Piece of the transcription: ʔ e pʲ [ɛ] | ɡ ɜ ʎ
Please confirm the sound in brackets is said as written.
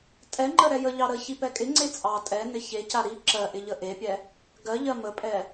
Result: yes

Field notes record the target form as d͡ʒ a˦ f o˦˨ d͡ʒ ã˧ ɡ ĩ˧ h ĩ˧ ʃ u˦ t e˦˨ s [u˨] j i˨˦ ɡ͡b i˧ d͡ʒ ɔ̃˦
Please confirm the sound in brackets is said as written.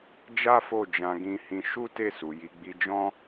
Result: yes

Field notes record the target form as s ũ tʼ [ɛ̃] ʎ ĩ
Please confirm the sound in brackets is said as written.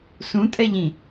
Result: no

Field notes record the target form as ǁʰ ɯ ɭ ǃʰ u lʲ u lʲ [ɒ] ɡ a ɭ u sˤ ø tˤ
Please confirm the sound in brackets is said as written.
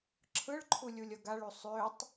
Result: no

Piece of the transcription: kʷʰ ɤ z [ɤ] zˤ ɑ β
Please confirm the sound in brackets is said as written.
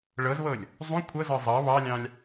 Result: yes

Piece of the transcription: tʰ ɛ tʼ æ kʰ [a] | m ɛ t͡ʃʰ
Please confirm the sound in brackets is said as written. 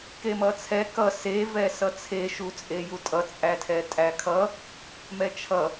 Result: no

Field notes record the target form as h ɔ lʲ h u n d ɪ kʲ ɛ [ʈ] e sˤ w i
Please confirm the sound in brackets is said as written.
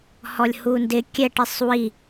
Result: yes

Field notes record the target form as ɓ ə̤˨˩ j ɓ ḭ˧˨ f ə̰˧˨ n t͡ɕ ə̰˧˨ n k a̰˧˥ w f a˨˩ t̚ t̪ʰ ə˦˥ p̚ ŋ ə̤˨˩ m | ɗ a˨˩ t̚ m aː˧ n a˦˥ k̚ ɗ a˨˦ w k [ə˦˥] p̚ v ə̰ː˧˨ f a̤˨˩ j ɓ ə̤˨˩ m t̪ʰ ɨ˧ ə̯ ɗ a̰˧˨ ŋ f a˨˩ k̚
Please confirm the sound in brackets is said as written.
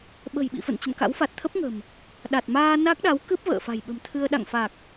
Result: no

